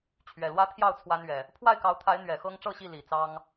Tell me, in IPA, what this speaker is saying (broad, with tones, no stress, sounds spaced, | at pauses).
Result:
t͡ɕʰ ɥ ɛ˨˩ l w ä˦ t̪ʰ j ɑ˥˨ ʊ̯ t͡sʰ w a˦ n ɥ ɛ˨˩ | pʰ w a˥˨ ɪ̯ k ɑ˨˦ ʊ̯ t̪ʰ a˨˦ ɪ̯ n̪ ɥ ɛ˨˩ x ɤ˦ ŋ ʈ͡ʂ ɤ˥˨ ɕ i˥˨ l i˨˩ t͡s ɑ˦ ŋ